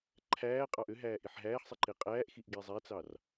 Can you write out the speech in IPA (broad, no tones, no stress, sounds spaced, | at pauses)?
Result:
ǃʰ æː qʼ ɑ ʔ ø ɦ æː ʔ i ħ ɦ æː ħ sˤ i ǃ e qʼ æː ʔ x i ʔ ɡ e zˤ æ t͡s ɑ r